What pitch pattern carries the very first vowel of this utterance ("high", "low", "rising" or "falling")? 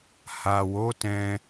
low